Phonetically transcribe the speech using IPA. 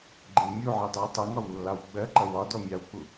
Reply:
ɡ͡ǃɪwmʲuʕi dˤɜwtˤʌŋɒw lːɑwɡ͡bɜǃʌ wɒdɔ mʲɑwk͡pu

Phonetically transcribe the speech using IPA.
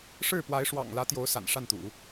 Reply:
ʂɻ̩˥˩pwa˧˥ɪ̯ʂwɑ̰˨˩ŋ lä˧˥t̪jo˧˥ʊ̯ sa̰˨˩nʂa˥˩nt̪ṵ˨˩˦

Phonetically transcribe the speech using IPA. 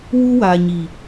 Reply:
wu˦wa˨ɲi˨

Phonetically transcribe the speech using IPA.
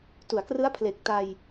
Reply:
tu˩˦a̯krɯ˦˥a̯pʰle˨˩k̚ ta˧j

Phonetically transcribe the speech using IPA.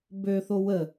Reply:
bøθo wə

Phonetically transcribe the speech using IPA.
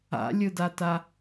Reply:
a̰lʲɯdata

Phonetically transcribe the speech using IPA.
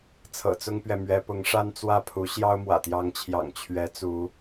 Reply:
t͡sʰɤ̰˨˩t͡sʊ˦ŋpɥɛ˨mɥɛ˨˦ pʊ˨˦ŋʂa˦n t͡swä˥˨pʰu˨˦ ɕjɑ˦ʊ̯mwä̰˨˩t̪jɑ˨˦ŋt͡ɕʰjɑ̰˨˩ŋ t͡ɕʰɥɛ˨˦t͡su˨˦

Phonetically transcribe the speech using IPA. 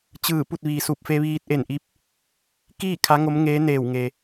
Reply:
t͡ɕɯː˧˩pu˥˨t̚ ʋiː˩su˧˩p̚fe˧ʋiː˧t̚ ʔe˧˩nʔi˧˥p̚ | kiː˥˨ kʰa˧˥ŋo˧˥m ŋeː˧˥neː˧˩wŋe˩

